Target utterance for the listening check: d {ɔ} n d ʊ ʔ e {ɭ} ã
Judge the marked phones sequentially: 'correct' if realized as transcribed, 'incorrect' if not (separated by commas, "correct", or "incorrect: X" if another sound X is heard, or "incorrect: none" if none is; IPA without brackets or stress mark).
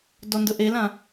correct, incorrect: l